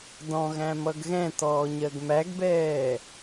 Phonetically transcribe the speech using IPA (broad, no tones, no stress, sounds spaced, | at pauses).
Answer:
d ɔ̃ ɣ æ̃ m ʌ ɡ ɣ ɛ̃ t ɔː ɲ ɜ ɡ m æ ɡ b ɛː